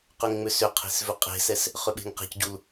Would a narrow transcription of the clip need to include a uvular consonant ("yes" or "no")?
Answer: yes